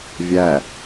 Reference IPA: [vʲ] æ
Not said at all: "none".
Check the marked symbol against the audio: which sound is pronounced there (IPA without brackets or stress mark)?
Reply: vʲ